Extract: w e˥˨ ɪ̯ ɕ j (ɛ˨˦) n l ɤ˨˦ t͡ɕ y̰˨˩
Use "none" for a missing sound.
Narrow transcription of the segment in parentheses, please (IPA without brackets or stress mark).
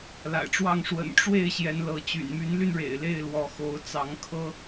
ɛ˨˦